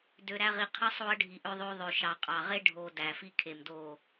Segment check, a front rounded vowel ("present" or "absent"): present